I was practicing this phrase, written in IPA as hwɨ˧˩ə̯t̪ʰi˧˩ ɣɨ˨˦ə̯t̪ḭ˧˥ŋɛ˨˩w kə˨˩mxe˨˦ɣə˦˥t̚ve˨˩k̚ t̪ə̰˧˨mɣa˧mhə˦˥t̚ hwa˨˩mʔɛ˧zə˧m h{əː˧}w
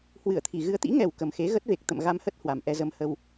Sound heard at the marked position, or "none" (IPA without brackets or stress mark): ə˧